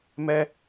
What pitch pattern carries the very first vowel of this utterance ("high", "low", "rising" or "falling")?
high